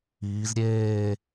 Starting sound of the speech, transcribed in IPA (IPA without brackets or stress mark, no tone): iː